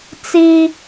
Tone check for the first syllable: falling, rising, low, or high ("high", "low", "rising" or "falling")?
high